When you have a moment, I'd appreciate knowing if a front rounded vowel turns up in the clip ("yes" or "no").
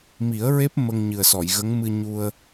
no